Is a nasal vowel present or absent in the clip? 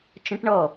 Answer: present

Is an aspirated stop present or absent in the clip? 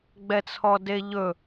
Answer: present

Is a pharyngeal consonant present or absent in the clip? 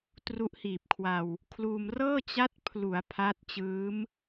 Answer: absent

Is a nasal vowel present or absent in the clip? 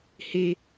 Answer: absent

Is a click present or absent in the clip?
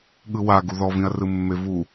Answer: absent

